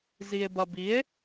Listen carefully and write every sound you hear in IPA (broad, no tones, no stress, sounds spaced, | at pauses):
z i e̯ b ɐ b i e̯